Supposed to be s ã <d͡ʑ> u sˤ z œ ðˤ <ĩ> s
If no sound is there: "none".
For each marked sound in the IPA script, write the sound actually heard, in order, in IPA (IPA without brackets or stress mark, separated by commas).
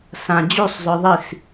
d͡ʑ, i